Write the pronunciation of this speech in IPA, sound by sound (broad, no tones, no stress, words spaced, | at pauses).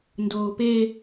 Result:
ndoːpe